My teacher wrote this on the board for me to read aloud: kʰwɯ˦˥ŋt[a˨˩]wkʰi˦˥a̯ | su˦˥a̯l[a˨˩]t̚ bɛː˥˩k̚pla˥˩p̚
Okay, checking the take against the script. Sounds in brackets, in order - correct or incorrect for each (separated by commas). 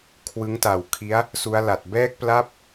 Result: correct, correct